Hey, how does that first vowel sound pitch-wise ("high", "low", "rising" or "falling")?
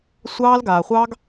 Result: high